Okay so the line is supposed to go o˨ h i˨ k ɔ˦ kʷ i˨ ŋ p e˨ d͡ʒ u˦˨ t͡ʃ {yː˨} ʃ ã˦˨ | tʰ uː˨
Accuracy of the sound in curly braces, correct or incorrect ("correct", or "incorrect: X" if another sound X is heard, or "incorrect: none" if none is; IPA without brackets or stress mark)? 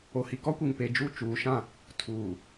incorrect: uː˨